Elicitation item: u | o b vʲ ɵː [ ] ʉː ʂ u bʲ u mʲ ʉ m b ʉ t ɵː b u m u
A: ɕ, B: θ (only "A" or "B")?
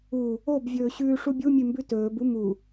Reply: A